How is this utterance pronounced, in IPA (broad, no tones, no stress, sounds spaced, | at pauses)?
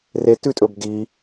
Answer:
r e t ʉ tʼ ɵ b d i